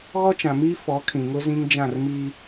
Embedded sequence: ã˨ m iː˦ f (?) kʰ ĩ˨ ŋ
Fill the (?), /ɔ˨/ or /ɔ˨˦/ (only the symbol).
ɔ˨˦